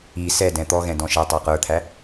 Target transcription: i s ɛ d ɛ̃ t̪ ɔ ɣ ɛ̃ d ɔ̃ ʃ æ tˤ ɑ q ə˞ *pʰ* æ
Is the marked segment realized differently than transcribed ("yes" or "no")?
yes